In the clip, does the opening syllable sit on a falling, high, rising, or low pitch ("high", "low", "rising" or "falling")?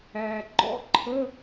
low